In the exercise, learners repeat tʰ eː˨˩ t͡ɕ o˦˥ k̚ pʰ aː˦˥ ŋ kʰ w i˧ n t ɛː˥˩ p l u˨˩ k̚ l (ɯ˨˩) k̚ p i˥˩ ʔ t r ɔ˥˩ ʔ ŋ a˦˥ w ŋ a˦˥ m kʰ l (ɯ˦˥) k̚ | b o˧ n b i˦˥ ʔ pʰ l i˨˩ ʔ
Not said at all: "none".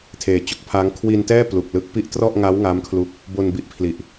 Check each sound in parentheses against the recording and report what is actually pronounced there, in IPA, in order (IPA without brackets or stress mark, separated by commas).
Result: ɯ˦˥, u˦˥